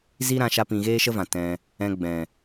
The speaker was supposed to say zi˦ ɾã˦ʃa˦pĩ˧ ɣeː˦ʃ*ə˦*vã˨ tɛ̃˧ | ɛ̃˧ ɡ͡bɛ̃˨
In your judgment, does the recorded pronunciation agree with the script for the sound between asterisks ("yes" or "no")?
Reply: yes